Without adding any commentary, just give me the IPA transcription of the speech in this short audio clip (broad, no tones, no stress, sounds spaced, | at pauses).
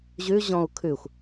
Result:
ʑ ʉ ʑ ɔ̃ u̯ kʰ ʉ xʷ